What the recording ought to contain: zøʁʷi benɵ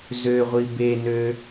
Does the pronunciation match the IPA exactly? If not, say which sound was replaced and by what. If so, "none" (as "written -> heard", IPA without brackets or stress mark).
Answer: ɵ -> ø